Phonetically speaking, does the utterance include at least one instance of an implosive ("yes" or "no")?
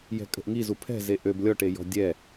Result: no